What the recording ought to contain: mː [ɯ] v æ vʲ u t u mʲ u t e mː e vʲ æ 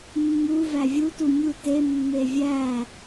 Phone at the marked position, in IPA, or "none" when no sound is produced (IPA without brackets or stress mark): u